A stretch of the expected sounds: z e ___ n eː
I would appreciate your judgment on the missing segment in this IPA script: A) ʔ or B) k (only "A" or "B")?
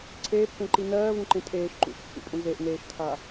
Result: A